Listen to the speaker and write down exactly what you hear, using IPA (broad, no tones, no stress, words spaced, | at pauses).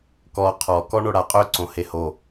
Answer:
kɔ qʰɔkɔ ɳoɽaqʼøǀõ heho